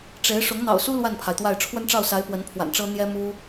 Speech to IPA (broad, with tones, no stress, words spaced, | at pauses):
ʈ͡ʂe˧˥ɪ̯ ʂʊ˧˥ŋn̪ɑ̰˨˩ʊ̯su˥ lwa˥˩npʰa˩ɪ̯t̪wa˥˩ɪ̯ ʈ͡ʂʰwə˥nʈ͡ʂɑ˥˩ʊ̯sa˧˥ɪ̯ pwə˧˥npʰwa̰˨˩nʈ͡ʂɤ˥ n̪jɛ˥ mu˥